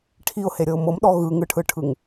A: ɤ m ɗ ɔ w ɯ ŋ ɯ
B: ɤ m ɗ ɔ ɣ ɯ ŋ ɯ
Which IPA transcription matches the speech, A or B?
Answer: B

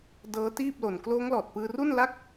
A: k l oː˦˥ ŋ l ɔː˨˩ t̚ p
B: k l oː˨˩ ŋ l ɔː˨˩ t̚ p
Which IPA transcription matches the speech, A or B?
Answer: A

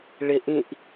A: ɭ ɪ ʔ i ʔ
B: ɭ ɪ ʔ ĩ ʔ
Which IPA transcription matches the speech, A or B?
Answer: B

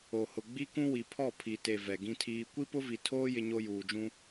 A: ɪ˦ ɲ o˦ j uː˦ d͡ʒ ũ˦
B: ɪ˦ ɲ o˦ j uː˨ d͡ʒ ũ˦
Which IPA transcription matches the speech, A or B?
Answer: B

